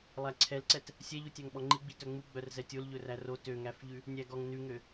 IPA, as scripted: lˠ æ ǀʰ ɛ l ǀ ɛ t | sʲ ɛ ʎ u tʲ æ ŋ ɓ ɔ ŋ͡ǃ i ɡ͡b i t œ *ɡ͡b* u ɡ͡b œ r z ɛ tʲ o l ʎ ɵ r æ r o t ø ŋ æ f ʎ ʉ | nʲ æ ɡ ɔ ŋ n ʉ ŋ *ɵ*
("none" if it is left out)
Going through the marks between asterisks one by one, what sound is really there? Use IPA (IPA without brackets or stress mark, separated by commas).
ŋ͡m, ø